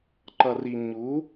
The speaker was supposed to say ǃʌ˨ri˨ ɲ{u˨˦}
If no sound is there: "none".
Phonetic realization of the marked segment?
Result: u˨˦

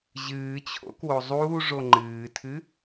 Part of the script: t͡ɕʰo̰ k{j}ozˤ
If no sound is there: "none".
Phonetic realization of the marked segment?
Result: w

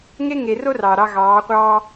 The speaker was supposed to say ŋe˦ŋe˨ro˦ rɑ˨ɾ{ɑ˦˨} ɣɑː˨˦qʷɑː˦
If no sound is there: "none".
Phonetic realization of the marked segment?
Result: ɑ˦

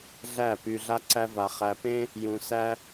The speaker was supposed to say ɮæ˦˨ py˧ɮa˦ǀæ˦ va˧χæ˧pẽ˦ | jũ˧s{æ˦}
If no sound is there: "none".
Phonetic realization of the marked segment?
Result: æ˦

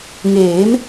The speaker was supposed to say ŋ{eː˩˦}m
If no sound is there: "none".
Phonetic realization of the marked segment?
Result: eː˩˦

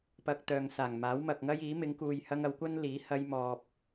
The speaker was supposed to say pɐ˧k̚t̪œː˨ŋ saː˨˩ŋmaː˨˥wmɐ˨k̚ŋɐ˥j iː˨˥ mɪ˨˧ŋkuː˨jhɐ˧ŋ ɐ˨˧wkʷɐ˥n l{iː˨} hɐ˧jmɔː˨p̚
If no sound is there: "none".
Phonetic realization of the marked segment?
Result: iː˨˥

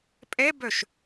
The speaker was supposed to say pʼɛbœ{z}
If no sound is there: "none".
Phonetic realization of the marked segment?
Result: ʃ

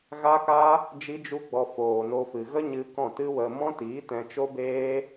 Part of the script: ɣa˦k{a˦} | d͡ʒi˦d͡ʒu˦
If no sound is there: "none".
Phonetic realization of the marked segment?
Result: a˦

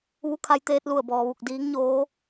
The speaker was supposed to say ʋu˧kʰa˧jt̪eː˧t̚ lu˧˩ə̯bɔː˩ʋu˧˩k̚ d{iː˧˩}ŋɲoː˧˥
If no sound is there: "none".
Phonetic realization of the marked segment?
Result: iː˧˥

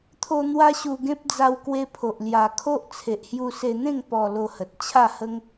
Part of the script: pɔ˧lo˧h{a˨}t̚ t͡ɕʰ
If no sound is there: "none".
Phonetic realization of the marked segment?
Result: ə˨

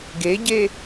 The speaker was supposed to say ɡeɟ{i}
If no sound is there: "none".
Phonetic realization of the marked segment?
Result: e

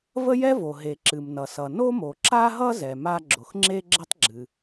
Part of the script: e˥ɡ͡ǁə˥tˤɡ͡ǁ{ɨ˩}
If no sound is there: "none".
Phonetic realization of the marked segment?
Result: ɨ˩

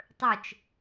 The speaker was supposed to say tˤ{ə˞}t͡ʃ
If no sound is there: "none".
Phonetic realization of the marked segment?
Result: ə˞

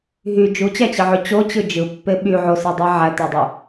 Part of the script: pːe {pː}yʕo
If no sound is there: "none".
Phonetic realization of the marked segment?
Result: ɓ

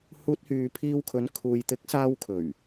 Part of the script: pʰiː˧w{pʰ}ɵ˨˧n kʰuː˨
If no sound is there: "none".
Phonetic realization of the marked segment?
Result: kʰ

